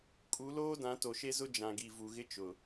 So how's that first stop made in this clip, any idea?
ejective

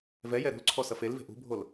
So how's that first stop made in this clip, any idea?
click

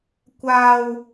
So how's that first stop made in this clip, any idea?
plain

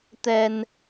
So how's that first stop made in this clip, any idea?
plain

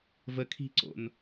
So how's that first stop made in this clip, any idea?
aspirated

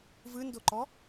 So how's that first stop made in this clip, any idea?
plain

